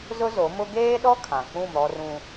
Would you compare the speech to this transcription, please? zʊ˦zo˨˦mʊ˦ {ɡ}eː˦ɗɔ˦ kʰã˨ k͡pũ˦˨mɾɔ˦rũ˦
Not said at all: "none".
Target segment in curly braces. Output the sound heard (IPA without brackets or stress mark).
ɡ